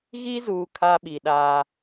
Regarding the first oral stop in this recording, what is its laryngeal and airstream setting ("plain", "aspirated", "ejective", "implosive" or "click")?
aspirated